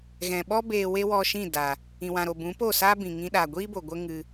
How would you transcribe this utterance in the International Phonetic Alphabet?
ɣ ɛ̃˨ ɓ ɔ˦ b eː˧ w e˦ w ɔ˧ ʃ ĩ˦˨ d a˨ | ĩ˨ w ã˨ ɾ o˨ b ũ˨˦ p o˦˨ s aː˦ b ĩ˨ ŋ ĩ˧ ɗ a˨ ɡʷ iː˦ b o˨ ɡʷ ə˦ ŋ ɨ˧

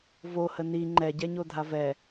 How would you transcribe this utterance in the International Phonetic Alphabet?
v o h ə n i ŋ͡ǃ ɛ ɟ ɛ ɲ o dʱ a v ɛ

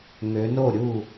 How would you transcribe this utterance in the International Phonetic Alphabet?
ŋ ø˨˦ n o˥˨ ɾʲ u˥˨

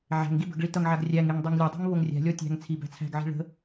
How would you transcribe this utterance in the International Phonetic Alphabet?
ʕ æ̤ ŋ ɡ i b ə̤ ɡ ɭ i t ʌ ŋ ʕ a ɡ rʲ æ ŋ e ŋ dˤ e ŋ lʲ ɔ dˤ i̤ ŋ β o ŋ rʲ æ̤ lʲ ɔ tʲ æ̤ ŋ t͡sʰ i b æ̤ t͡sʰ æ̤ ɡ ʕ i̤ ɭ ə̤

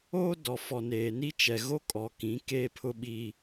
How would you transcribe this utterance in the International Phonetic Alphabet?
oː˦ d ɔ˨ f ɔ˨ n eː˨ n i˦ t͡ʃ ɛ˨ ɣ o˦ kʼ ɔ˨ k ĩ˨˦ k eː˦ pʰ ʊ˦ ɓ i˦

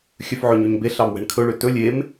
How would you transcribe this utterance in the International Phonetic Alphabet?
xʲ œ f ʕ ø ɲ y ɲ b e ɬ ɑ m w ɛ̤ ɳ kʰ ɵ ɭ ø t ɵ lʲ e m

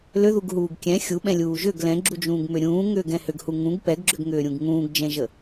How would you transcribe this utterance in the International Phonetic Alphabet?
l ʏ ð u ɡ ɦ uː ɡ kʲ ɛ̃ xʲ u ɓ ɛ̃ lʲ uː ʒ ʏ ɡ l ɛ̃ ɡ͡ǁ u d͡ʒ ũː ɡ m ʏ ɾʲ ũː ŋ ʏː ɡ ɛ̃ h ʏ ɡ h u ŋ ũ ɡ p ɛ ɡ ɡ͡ǁ ʏ ɡ ŋ ʏː ɾʲ ũ ɡ ŋ ũː ɡ d͡ʒ ɛ̃ ʒ ə

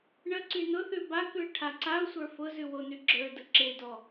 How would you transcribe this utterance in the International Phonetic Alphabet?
ɳ ə ǀ y n ʊ θ ʉ b a k ʉ ɪ̯ ʈʰ a ǀ a ʊ̯ sʷ ə˞ f ʊ z ʉ w o n y ɡ͡ǁ ə˞ d ə ǁ e d ɔ

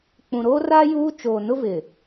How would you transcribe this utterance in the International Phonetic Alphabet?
k͡p ũ˨ ɾ oː˦ r a˦ j uː˦ t͡ʃ oː˨ n ʊ˦ v ɪ˨

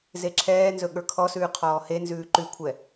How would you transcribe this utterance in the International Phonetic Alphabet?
z e ǁʰ ɛː n z ɵ ɠ ə˞ kʰ ɔ s ʉː qʰ ɔː h e n z ʉː ǃ ʉ kʷʰ ɛ

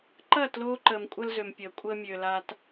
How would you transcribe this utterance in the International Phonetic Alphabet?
ǃ ɐː˦˨ t l oː˧ ǃ əː˨ m kʷʼ ɐ˦ l z ø˨ m pʲ əː˨ kʷʼ əː˦ mʲ ø˨ l a˧ t

